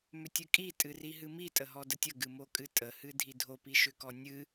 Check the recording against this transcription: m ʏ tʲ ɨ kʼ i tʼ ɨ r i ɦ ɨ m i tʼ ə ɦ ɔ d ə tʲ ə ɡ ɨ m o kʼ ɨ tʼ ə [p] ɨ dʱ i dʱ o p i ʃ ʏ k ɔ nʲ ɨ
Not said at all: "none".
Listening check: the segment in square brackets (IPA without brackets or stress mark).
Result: h